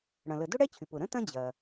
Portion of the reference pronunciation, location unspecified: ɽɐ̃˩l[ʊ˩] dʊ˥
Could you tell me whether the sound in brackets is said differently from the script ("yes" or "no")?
yes